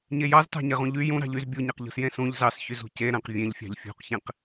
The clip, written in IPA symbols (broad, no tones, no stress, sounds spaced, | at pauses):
ɲ e j ɑ z t ɑ̤ ɲ e ʁ ũ ʎ y j ũ ɾ ɑ̤ ʎ y z bʲ u ɲ e q ʎ ṳ s j ẽ s ũ ʎ z ɑ s ç y z ṳ c e ɾ æ̃ q vʲ ẽ ʎ fʲ ɑ̤ ʎ fʲ ṳ q ç ẽ q